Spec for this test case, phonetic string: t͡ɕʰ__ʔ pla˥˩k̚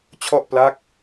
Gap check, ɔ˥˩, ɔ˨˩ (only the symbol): ɔ˥˩